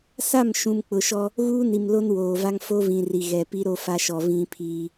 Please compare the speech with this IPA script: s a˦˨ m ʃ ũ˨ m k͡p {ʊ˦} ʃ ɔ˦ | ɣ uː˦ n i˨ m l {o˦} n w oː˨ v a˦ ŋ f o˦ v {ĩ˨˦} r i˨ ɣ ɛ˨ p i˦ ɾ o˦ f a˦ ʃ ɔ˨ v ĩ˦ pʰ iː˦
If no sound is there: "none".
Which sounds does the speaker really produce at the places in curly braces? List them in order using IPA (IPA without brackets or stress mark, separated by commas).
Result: ʊ˨, o˦, ĩ˨